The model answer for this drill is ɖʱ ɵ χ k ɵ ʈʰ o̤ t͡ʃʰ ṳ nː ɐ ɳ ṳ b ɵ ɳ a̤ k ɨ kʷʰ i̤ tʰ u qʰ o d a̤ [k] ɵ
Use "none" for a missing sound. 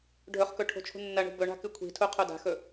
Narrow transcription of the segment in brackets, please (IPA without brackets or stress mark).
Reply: x